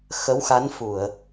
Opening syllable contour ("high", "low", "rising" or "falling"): rising